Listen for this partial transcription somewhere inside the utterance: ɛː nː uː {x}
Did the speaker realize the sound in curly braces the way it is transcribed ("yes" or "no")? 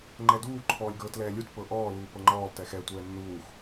yes